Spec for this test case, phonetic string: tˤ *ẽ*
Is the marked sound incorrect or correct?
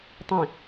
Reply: correct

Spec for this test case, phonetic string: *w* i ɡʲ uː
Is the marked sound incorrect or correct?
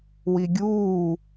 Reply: correct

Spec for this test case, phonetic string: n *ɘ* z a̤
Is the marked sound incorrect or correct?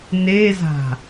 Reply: incorrect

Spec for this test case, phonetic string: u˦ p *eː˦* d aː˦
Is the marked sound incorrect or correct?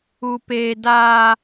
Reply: correct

